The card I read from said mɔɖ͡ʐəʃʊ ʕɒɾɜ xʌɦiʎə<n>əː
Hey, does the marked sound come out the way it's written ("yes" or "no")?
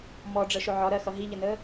yes